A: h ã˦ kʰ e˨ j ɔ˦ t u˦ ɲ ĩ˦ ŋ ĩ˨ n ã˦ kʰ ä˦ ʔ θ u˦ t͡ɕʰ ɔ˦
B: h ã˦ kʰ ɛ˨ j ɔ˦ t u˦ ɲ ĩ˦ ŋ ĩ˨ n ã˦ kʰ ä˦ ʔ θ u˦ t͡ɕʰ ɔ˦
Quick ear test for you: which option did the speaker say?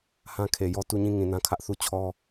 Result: A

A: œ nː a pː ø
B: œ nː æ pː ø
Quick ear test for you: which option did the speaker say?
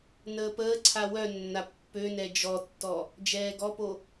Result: A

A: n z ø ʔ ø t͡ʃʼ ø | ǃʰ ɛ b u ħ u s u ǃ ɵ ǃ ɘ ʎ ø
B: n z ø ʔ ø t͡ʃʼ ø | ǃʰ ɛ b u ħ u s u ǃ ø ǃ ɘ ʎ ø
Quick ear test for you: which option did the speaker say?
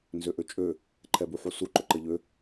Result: A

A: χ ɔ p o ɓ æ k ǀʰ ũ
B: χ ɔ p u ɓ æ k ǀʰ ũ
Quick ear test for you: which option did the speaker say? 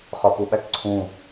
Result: B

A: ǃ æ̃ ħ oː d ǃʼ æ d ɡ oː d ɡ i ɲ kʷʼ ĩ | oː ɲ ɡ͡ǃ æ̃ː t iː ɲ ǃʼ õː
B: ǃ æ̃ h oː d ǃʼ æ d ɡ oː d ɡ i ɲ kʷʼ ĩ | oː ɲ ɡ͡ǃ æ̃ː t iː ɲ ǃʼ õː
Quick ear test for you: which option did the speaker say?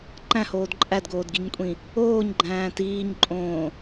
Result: B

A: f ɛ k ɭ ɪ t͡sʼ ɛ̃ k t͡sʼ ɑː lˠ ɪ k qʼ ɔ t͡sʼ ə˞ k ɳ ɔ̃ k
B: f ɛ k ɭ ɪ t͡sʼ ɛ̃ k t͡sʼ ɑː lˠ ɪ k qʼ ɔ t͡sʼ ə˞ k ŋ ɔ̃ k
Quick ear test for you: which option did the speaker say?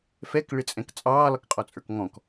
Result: B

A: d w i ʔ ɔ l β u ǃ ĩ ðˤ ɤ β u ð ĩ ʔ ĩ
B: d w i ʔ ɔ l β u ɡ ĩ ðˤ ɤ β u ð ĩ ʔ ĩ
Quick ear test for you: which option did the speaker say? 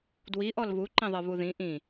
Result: A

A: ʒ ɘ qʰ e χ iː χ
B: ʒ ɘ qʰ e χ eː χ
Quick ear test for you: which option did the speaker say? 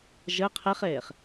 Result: B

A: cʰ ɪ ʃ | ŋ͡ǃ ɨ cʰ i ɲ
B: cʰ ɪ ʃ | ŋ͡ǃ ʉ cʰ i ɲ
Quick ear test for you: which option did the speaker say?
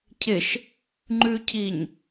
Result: B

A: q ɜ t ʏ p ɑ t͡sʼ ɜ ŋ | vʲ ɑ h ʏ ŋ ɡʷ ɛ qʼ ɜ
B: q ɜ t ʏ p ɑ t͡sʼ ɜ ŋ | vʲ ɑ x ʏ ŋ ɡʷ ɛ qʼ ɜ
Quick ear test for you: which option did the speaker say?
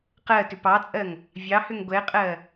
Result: A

